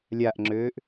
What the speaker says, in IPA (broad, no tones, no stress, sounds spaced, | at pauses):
lʲ a ʔ ŋ͡ǁ øː ʔ